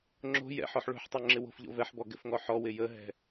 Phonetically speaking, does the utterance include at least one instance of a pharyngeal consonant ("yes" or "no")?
yes